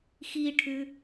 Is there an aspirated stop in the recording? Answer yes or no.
yes